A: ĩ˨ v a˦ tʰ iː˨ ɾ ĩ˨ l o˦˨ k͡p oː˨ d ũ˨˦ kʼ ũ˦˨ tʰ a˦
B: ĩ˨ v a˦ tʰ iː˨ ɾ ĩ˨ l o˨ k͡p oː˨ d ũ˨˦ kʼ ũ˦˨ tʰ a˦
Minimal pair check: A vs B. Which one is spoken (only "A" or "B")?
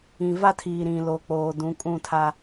B